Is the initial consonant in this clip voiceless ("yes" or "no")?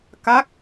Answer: yes